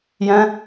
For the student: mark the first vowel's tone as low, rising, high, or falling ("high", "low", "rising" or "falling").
high